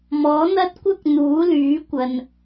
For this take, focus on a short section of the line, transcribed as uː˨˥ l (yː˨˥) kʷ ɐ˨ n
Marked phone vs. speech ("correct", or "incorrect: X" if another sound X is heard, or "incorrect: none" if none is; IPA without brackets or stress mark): correct